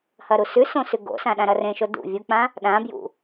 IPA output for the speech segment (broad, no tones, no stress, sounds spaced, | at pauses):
h ɐ ɾ u s ʉ s õ s ʉ ɡ o̰ s ã ɗ ã ɾ ɐ r ẽ ʃ o d ṵ vʲ u k͡p ã | ɗ ã b j ṵ